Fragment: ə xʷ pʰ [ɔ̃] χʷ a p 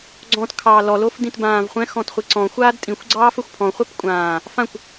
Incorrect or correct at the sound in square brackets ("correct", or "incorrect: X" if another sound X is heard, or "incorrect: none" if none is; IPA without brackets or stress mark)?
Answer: correct